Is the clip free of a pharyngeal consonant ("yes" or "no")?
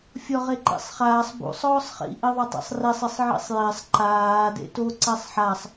no